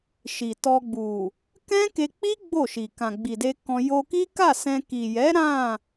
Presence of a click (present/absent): absent